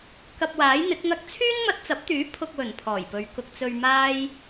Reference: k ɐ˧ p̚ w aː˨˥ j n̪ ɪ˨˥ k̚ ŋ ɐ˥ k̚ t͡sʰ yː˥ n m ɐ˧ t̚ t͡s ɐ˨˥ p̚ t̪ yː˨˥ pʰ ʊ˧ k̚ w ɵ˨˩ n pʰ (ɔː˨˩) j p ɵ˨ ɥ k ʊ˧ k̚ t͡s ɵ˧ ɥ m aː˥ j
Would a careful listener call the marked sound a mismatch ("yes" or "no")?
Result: no